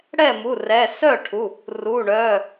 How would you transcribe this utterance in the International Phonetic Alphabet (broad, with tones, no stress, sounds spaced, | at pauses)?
ɽ ɛː˥˩ m u˩˧˩ r ɛː˩˧˩ s œː˥˩ ʈʰ u˩˧˩ | r uː˩˧˩ ɳ œː˩˧˩